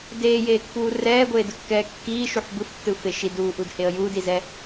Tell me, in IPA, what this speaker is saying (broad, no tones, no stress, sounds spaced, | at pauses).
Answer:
d eː j eː kː uː r ɛː ɡʷ eː d ɯ kː ɛː kː iː ʃ u ħ b ɯ f tː ɯ f e ʃ i d uː ʔ u d h e ə̯ j uː d i z ɛ